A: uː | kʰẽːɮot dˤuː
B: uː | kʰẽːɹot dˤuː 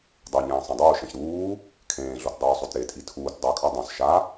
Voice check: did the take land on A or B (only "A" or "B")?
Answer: A